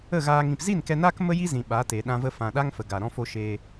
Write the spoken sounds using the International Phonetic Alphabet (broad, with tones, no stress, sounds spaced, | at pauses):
ə˦˨ ɣ aː˧ ŋ ĩ˨ p z i˦˨ n k ɛ˧ n aː˦ k m ə˦ j i˦ z ĩ˨ ɓ a˨˦ t e˨ ɗ ã˧ v ə˧ f ã˨ ɗ a˦ ŋ f ə˨ ɡ a˨ ɾ ɔ̃˧ f o˧ ʃ eː˧